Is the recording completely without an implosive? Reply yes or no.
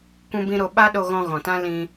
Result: no